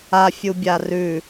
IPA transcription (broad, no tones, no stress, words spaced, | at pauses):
a fʲubʲarʉ